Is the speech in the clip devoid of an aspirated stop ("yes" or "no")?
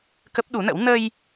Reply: yes